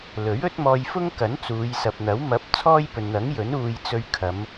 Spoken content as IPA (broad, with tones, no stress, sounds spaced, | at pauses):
l ɵ˨˥ ɥ ɵ˥ t̚ m ɔː˧ j f ʊ˥ ŋ k ɐ˨˥ n t͡s uː˨˧ j s ɐ˨ p̚ n̪ ɐ˨˥ w m ɐ˨˥ p̚ t͡sʰ ɔː˥ j p ɵ˨ n n̪ ɐ˨˥ ŋ j ɵ˨˥ n uː˧ j t͡s ɵ˧ ɥ kʰ ɐ˨˧ m